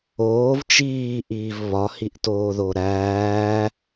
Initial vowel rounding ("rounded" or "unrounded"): rounded